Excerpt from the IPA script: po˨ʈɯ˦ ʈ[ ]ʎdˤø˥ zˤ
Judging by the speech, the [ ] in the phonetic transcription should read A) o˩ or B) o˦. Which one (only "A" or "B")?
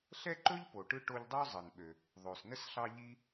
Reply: B